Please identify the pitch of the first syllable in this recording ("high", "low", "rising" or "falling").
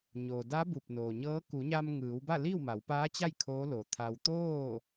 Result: low